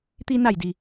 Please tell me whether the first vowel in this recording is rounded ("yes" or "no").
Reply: no